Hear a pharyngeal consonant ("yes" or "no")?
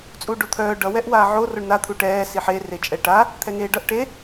yes